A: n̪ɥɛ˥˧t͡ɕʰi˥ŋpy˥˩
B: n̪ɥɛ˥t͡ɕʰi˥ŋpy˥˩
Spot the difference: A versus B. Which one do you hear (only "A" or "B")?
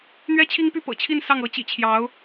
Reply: B